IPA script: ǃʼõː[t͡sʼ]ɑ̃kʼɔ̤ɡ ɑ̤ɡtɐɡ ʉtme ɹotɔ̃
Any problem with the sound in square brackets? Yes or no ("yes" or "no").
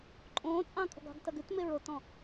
no